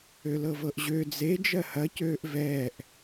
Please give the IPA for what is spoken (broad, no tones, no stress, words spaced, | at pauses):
ølɤvɤʔʑø d͡ze d͡ʒɜhɐ cøːʔvɛːʔ